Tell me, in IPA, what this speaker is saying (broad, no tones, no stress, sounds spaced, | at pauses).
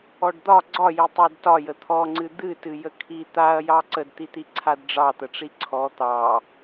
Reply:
ɔ ɖ d̪ ɒ ɡ͡ǀ ɒ j i tˤ a d t ɒ j ə t̪ʰ ɔ ŋ͡ǀ ɨ d̪ ɨ t ɨ j ə kʰ i t̪ a ɐ̯ j ɑ ǀ ə d t̪ i t̪ i ǀʰ a d ɖ͡ʐ ɑ t̪ ə ʈ͡ʂ i ǀʰ ɔ t̪ ɑ